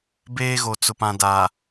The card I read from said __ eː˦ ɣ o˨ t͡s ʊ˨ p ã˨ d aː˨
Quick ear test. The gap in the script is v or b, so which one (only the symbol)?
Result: b